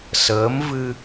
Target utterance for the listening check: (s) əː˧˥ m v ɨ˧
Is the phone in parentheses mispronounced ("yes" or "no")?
no